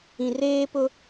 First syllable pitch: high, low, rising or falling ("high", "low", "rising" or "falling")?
low